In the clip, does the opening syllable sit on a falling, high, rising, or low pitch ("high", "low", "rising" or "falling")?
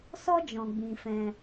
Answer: high